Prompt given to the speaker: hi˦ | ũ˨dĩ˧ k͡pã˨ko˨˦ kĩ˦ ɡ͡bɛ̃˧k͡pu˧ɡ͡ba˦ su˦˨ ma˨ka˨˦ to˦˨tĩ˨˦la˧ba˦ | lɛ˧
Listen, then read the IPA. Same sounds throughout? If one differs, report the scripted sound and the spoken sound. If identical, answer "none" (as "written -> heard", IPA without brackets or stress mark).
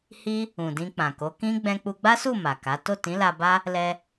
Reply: none